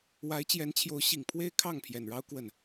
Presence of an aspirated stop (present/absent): present